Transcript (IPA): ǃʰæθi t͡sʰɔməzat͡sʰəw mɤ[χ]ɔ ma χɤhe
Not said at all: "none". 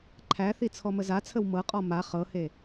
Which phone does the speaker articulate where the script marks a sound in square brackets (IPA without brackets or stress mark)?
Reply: qʼ